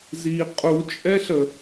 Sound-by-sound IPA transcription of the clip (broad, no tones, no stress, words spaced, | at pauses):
zi qʼut͡ʃʼɛɬə